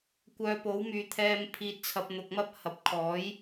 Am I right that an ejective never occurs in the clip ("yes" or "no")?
yes